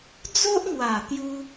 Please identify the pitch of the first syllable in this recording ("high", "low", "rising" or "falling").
high